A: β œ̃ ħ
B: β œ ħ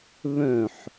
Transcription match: A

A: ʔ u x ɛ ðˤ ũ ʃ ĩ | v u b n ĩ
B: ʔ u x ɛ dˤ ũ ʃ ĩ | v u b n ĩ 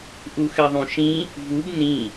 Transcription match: A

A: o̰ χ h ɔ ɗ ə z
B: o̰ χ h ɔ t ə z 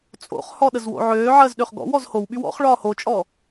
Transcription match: A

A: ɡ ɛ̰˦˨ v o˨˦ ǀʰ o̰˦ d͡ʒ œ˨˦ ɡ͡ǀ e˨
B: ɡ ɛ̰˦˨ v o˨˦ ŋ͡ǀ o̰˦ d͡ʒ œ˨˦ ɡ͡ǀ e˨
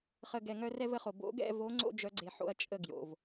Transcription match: B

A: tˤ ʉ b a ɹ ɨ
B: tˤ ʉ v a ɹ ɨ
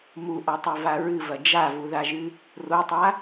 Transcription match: B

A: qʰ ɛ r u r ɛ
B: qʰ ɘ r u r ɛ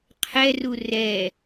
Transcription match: A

